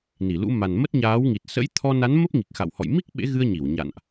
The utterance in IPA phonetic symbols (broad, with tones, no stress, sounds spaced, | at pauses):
n i˧˩ l ṵ˧˥ m a˨˩ n m ə˦˥ t̚ ɲ aː˨˦ w ŋ i˨˩ t̚ s ə̰˧˥ j t̪ʰ ɔ˧ n a˨˦ n m ə˦˥ p̚ ŋ i˨˩ k̚ x a̰˧˨ w h ɔ̰˧˨ j m i˦˥ k̚ ɓ ḛ˧˥ ɣ ɨ˧ ə̯ ɲ i˧˩ w ɲ a̰˧˨ n ʔ